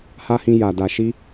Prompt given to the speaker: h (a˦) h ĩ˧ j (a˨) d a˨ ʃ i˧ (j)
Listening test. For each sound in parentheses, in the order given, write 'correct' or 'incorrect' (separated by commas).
correct, correct, incorrect